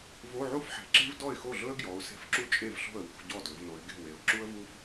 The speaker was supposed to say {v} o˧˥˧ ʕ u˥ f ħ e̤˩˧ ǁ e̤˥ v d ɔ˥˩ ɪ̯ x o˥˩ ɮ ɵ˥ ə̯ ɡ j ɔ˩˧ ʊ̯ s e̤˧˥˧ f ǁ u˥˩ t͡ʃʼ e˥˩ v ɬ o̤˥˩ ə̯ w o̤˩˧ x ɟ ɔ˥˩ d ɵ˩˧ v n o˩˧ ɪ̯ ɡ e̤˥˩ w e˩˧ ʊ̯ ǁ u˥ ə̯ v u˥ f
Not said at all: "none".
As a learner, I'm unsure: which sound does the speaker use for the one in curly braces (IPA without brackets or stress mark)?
v